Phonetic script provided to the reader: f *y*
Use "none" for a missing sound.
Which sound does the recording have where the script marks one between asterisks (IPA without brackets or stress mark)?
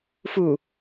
u